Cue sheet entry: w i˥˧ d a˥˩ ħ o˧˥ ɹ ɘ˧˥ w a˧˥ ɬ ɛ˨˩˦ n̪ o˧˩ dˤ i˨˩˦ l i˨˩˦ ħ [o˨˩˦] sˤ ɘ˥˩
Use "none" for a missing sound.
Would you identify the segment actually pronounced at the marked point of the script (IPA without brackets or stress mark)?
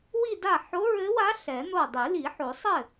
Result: o˨˩˦